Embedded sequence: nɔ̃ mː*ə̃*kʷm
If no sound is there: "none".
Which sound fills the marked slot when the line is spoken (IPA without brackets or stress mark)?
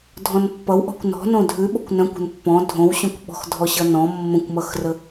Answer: ə̃